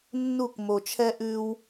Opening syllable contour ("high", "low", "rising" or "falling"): falling